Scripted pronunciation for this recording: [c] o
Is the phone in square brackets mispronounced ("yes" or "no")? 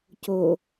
no